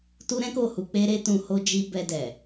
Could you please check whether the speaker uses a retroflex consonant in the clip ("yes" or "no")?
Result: no